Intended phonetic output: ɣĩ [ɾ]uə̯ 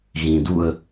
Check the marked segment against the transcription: incorrect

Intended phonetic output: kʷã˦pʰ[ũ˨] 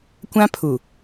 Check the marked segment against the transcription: incorrect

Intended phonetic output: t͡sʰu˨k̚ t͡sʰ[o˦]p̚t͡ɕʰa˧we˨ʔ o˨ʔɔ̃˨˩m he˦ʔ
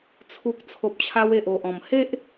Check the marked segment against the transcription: incorrect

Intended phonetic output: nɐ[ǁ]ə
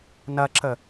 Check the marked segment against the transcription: correct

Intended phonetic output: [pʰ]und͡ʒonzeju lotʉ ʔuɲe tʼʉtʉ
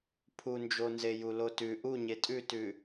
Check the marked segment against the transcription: correct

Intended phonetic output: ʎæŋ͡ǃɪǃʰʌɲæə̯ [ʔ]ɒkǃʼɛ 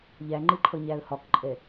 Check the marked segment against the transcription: incorrect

